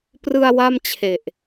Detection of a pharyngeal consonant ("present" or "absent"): absent